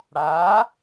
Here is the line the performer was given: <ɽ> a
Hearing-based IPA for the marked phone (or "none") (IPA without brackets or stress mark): ɽ